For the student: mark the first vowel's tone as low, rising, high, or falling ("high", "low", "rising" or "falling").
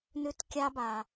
high